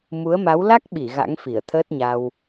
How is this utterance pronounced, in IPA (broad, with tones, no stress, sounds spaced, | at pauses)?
m u˨˦ ə̯ m a˨˦ w l a˦˥ k̚ ɓ i˧˩ ɣ a̰˧˥ ŋ f i˧˩ ə̯ t̪ʰ əː˦˥ t̚ ɲ a˧ w